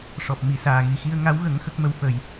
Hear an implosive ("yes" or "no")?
no